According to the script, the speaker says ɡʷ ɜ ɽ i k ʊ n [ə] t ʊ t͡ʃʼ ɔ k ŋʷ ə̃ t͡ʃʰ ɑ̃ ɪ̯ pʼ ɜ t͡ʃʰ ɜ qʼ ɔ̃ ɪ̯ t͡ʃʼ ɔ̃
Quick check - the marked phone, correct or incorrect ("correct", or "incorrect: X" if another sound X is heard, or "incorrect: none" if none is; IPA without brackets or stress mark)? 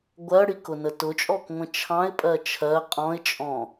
correct